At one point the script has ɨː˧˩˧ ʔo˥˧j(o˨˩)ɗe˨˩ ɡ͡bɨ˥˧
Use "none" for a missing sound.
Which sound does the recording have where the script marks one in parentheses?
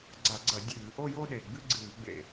o˥˧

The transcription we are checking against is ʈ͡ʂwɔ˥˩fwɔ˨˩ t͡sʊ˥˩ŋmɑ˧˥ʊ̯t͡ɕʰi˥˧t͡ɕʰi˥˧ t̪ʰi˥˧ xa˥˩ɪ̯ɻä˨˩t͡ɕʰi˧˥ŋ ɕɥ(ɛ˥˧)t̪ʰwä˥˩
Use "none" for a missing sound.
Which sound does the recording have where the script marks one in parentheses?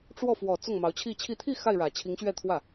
ɛ˥˧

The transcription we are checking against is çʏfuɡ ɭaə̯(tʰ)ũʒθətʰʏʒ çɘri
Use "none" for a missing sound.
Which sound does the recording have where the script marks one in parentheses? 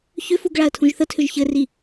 tʰ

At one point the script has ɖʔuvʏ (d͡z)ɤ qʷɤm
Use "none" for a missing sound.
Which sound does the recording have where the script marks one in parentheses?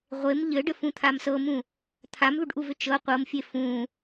t͡ʃ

